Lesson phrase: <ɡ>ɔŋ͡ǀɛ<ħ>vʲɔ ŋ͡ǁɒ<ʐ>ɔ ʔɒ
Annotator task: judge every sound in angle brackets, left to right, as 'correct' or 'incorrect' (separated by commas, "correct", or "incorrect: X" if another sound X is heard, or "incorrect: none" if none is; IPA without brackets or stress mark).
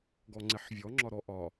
correct, correct, incorrect: ɾ